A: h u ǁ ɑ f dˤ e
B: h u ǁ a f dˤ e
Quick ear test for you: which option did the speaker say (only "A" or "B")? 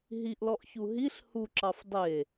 A